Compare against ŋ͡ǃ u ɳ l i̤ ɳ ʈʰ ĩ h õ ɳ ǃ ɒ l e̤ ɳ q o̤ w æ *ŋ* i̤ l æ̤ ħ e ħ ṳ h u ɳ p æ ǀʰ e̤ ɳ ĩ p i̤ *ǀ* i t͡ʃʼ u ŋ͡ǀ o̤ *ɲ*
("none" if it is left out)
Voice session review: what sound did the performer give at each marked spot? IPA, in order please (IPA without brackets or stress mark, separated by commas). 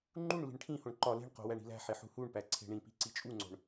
ɳ, ǀ, ɳ